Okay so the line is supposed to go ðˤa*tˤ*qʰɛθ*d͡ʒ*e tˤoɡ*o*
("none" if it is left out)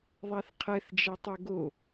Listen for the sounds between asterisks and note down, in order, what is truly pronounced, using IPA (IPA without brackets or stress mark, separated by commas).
θ, d͡ʒ, o